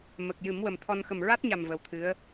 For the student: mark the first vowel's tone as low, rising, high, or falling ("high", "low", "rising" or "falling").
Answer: low